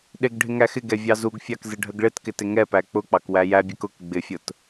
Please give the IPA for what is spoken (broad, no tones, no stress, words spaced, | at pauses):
ɗɪɡ ɖʱɪŋæxɪɡɛ vʲɑzuɡfʲɑk zɪɖʱəɡɭɪtkɪ tɪŋɛpæ k͡pʊk͡pɑk wæjæbʲɛk ʊk ɡ͡bɪfʲʊt